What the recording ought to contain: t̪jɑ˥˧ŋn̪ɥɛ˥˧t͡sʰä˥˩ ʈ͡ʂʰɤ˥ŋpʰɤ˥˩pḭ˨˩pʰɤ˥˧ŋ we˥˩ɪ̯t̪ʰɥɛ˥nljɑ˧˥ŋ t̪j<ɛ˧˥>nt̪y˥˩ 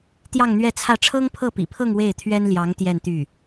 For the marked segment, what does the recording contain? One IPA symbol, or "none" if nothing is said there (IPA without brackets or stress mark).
ɛ˥˧